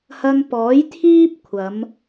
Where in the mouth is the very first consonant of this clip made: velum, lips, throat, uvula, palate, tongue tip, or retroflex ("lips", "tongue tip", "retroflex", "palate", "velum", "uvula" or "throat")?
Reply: throat